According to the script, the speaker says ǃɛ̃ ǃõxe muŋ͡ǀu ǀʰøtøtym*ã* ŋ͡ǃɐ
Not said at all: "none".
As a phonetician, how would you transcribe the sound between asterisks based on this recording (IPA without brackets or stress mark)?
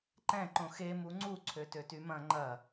ɐ̃